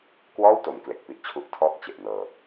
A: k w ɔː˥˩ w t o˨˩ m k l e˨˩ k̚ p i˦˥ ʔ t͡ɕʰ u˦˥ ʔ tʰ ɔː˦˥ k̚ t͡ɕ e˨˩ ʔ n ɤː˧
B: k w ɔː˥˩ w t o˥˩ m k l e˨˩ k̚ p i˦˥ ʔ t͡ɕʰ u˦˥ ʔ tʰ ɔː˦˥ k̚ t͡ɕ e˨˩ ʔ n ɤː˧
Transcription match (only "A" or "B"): A